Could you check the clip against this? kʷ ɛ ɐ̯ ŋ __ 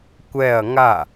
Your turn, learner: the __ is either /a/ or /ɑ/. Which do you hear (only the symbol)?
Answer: a